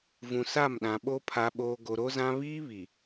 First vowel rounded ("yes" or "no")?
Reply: yes